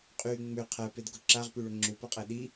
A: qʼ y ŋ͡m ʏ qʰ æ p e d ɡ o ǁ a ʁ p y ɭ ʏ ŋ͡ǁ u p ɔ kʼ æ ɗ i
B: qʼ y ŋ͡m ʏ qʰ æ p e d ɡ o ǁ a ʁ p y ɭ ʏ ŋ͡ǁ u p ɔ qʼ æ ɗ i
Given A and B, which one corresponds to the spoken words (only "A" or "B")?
B